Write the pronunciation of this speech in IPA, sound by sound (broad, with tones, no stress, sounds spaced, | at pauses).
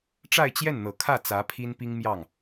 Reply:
ʈ͡ʂ a˥˧ ɪ̯ t͡ɕ j ɛ˥˩ n n̪ ɤ˨˩ kʰ ä˥˩ t͡s ä˧˥ pʰ i˥ n p i˥ ŋ m j ɑ˥˩ ŋ